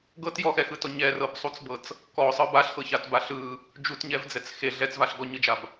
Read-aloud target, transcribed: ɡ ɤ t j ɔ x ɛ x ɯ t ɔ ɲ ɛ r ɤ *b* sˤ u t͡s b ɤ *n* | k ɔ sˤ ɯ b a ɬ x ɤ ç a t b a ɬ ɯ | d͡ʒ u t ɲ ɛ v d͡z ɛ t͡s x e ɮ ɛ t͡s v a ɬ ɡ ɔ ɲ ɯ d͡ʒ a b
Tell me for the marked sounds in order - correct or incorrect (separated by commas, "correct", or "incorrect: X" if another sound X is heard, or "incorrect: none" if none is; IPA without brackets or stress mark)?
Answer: correct, incorrect: t͡s